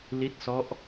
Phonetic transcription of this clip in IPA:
l i˦˥ t̚ s ɔ˦˥ ʔ

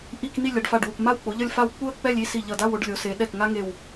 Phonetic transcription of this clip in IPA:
ʔ i˥˧ k n̪ i˥˧ lʲ a˩˧ ɖ f a˧˩ ɖ w u˧˩ k m a˥˧ w k͡p o˩˧ ʎ ʌ˥˧ lʲ f a˥˧ w k͡p u˥˧ ə̯ k͡p ɛ˥˧ lʲ i˥˧ s i˧˩ ʎ ʌ˧˩ d a˥˧ w o˧ ɖ lʲ o˩˧ s e˩˧ ɗ ɛ˧˩ k ŋ a˥ ŋ e˧˩ w

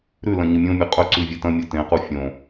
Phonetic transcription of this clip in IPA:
ɾ ʉ l ɐ̃ ɲ ɨ mʲ õ mʲ ɵ qʼ ɵ ǀ ʉ vʲ e t ɐ̃ mʲ o t ẽ q u fʲ õ

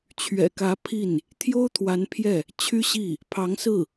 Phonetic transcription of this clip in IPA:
t͡ɕʰ ɥ ɛ̰˨˩ k ä˧˥ pʰ i˥˩ n | t̪ʰ j o˥ ʊ̯ t̪ʰ w a˧˥ n pʰ j ɛ˥˩ | t͡ɕʰ y˥ ɕ i˥˩ | pʰ ɑ˧˥ ŋ s ɹ̩˥˩

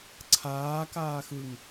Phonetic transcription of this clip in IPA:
ǀʰ aː k aː x ɯ ŋ

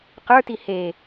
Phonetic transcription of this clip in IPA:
q ə˞ t i h e

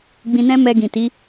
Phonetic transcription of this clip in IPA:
ɡ͡b ĩ˧ n ɛ̃˦ m ɛ˧ ɡ ĩ˨ t i˨˦

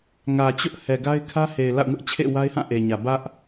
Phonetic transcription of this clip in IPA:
ŋ ä˨ t͡ɕ ʊ˦ ʔ h ɛ˨ ɡ a˦ ɪ̯ kʰ ä˦ h e˨ ɪ̯ l a̰˦˨ ʊ̯ ŋ ʊ˦ ʔ t͡ɕʰ ḛ˦˨ w a˦ ɪ̯ h ã˦˨ ʔ e˨ ɲ ä˨ b ä˦ ʔ

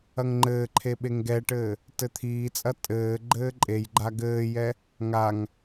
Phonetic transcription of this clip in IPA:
ɐ ŋ ŋ͡ǃ ɘː ǃʰ e ɓ e ŋ ɡ ɛ ʈ ɘː | t ɘ t̪ʰ iː t͡sʼ ɐ tʼ ɘː ɡ͡ǃ ɘː ǃʼ e j ɡ͡ǃ a ɡ ɘː j ɛ | ŋ a ŋ

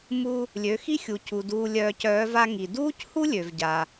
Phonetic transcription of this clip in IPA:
m u˧ | lʲ ø˩˧ x i˥ xʲ u˩ cʰ u˩ d uː˧ lʲ œː˧ c œː˧˥ v a˧ ŋ i˩ d uː˥ c h u˥ lʲ ø˩ v ɟ a˩

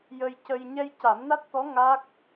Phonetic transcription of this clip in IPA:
j ə˧ j c ə˧ j ɲ ɛ˧ j c a˨˩˦ m n a˦˥ t̚ t̪ ɔ˧˥ ŋ a˦˥ k̚

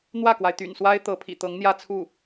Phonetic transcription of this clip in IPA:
n̪ w ä˥˩ k w a˩ ɪ̯ t̪ y̰˨˩ n s w a˥ ɪ̯ t̪ ɤ˧˥ pʰ ḭ˨˩ t̪ ɤ˧˥ ŋ n̪ j ä˥˧ t͡sʰ u˥˩

